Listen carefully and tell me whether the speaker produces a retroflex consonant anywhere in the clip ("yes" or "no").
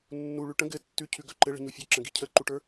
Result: yes